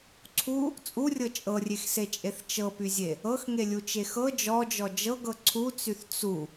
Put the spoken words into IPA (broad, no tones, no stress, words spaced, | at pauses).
ǀʰu | t͡sʼurʲɤ t͡ʃʼɤrʲexset͡ʃʼeθ t͡ʃɤpyzʲe | ɤxŋelʲut͡ʃe xɤ d͡ʒɔd͡ʒɔ d͡ʒɤɡɤ ǀʰut͡syθ t͡su